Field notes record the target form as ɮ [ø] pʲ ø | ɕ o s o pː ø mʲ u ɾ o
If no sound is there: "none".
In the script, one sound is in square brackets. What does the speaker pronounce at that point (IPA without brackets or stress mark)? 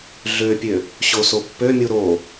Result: ø